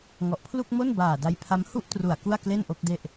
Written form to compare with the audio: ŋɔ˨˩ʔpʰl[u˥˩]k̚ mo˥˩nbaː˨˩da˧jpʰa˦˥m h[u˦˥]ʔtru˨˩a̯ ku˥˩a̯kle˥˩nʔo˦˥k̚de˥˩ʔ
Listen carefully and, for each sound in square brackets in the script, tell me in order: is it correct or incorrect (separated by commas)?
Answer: correct, incorrect